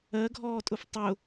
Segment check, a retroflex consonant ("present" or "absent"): absent